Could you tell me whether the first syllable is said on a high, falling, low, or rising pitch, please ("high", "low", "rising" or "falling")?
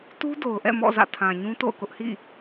high